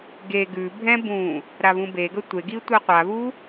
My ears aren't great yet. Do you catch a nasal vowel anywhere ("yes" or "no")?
yes